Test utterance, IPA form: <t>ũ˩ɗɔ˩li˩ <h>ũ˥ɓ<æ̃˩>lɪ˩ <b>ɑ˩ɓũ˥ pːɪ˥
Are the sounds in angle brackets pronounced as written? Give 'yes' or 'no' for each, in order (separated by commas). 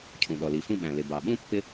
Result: no, no, yes, yes